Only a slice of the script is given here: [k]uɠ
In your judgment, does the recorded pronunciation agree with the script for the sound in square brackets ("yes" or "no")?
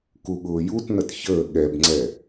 yes